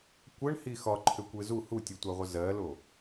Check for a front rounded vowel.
present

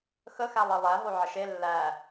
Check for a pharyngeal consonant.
present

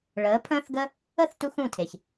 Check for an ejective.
absent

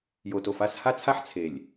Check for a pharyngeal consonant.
present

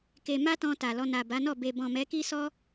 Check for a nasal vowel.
present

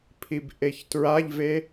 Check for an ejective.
absent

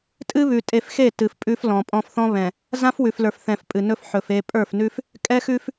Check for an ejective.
present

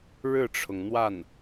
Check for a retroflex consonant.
present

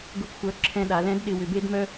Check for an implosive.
present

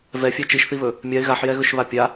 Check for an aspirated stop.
absent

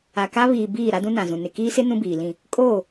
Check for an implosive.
absent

